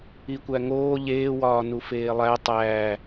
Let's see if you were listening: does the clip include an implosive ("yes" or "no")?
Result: no